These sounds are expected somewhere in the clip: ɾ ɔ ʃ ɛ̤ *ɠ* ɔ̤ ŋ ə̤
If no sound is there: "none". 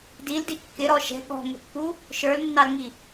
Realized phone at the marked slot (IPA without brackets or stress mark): ɠ